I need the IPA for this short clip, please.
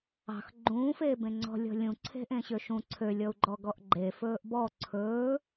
ɑ̤ x ɡ͡ǃ ũː f eː b ẽ ŋ͡ǀ ɔ̤ lʲ ɔ̤ lʲ ũ ǀʰ e̤ ʔ ẽ ɕ ø ʃ ũ ǀʰ ø lʲ ɔ u̯ ɡ͡ǃ ɔ ɡ ɔ ʔ ɡ͡ǃ e f ɵː ʔ b ɔ ǀʰ ɵː

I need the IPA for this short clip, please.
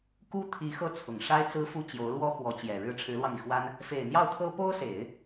k u˥ t̪ʰ i˧˥ x ɤ˥˩ t͡sʰ ʊ˨˩ ŋ ʂ a˥ ɪ̯ t͡s ɹ̩˥ f u˥˩ t͡ɕ j o˧˥ ʊ̯ l w ɔ˥ x w ɔ˧˥ t͡ɕ j ɛ˨˩ ɻ ɻ̩˥˩ ʈ͡ʂʰ ɻ̩˧˥ l w ɑ˧ ŋ i˩ x w a˥ n | f e˨˩ ɪ̯ n̪ j ɑ˥˩ ʊ̯ t̪ʰ ɤ˥ p o˥ ʊ̯ s e˨˩˦ ɪ̯

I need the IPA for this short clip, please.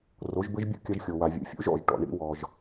r o˩˥ ʒ b ɘ˥ ʒ bʲ ṵ˥ kʲ ɐ˧ ʒ xʲ o˩ w a˩ vʲ ṵ˩˥ fʲ ṵ˩˥ ʒ ɔ̰˥˩ ʒ ʈ ɔ̰˩ ɳ ḭ˧ w ɔ˩ ʒ

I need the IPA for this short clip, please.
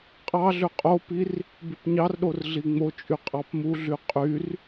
qʼ ɑ ɮ ø qʼ o p i r | b y p ɲ ɑ r ɗ o r ɮ i ŋ͡m o t͡ʃʼ y qʼ ɑ p m u ɮ y qʼ y r

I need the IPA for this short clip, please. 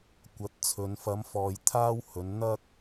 kʷ ɐ˨˥ t̚ t͡sʰ ɵ˨˧ n f ɐ˨˧ m f ɔː˨ j t̪ʰ aː˥ w h ɵ˨˧ n n̪ ɐ˥ k̚

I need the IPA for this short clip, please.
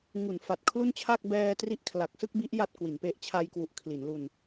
ŋ u˩˦ n f a˨˩ t̚ kʰ l u˥˩ n t͡ɕʰ a˥˩ k̚ b ɛː˧ t r i˦˥ ʔ kʰ l a˨˩ k̚ s ɯ˥˩ k̚ b i˦˥ ʔ j a˥˩ t̚ k w i˩˦ n p e˦˥ ʔ t͡ɕʰ a˧ j k w u˨˩ ʔ kʰ l i˩˦ n l u˧ n

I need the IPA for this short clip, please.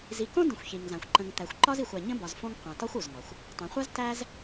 z i˨ k õ˥ d ə̃˨ xʷ ç i˩ ŋ z ã˩ xʷ ǃ ə̃˨ ŋ t̪ æ˩ xʷ ǃ ɒ˥ z i˨ xʷ a˨ ɲ ə̃˥ b ɒ˨ z f õ˦ ŋ qʷ ã˩ t ɒ˥ xʷ o˩ z ŋ ɒ˩ xʷ | tˤ ĩ˩ χʷ a˥ z t æ˥ z

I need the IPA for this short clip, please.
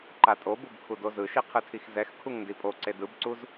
ǃ a tʼ o b u b kʰ u d o z ɯ ʃ i qʰ ɯ tʰ i x z ɛ x kʰ u ŋ n d i pʼ o ǀ e d ɯ b ǀ u z

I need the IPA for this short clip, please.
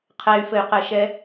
qʰ ɛ y̯ f ɘ y̯ q ɘ ʃ ɛ

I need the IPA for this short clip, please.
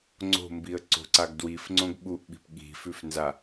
ŋ͡ǀ o̤ m b i ə̯ ǀ o̤ ǀ a ɡ d w i f ŋ͡ǀ õ ɡ ɓ u ʔ ɓ i̤ p ɠ i̤ f ʉ f n z a

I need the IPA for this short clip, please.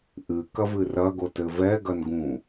ʔ ɨ k ɐ v ɨ r ɐ ɡ o t ɘ v ɛ ɡ ɐ n ɡ ũ

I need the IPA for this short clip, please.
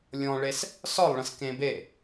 lʲ ɔ̃ ɭ e s | s ɒ lˠ ɭ ə̃ s k ẽ b e

